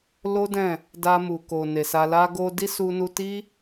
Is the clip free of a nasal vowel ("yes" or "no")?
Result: no